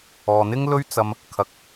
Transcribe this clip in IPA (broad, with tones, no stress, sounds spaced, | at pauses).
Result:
ɔː˨ n̪ ɪ˥ ŋ l ɵ˥ ɥ t͡s ɐ˧ m | kʰ ɐ˨˥ k̚